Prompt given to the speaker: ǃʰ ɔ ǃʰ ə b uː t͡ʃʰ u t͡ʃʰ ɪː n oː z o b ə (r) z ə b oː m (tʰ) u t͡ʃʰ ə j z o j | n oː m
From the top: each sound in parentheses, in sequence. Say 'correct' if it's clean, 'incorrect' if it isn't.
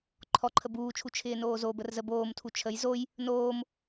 correct, correct

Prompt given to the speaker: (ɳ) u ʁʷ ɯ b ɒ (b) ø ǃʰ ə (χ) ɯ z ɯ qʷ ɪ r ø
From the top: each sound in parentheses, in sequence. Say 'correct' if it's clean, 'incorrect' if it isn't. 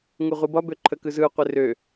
incorrect: ŋ, correct, incorrect: k

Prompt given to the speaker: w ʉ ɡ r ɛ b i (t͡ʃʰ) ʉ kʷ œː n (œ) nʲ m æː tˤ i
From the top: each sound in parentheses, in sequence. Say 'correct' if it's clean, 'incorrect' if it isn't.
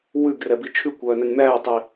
correct, incorrect: æ

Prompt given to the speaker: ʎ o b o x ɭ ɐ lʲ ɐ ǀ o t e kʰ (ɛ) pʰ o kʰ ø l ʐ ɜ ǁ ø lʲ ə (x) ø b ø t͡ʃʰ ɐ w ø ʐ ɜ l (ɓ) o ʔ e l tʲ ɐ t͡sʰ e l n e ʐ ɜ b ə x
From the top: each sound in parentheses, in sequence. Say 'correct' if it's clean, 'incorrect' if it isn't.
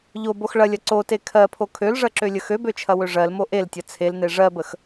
incorrect: ɜ, correct, incorrect: m

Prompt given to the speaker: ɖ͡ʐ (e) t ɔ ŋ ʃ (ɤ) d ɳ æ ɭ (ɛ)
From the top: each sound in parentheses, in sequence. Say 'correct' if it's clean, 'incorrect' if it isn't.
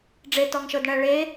correct, correct, incorrect: e

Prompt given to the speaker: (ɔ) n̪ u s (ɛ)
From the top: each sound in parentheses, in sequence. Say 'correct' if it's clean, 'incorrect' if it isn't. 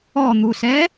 correct, correct

